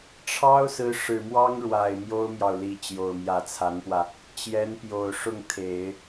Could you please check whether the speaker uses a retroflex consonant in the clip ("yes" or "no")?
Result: yes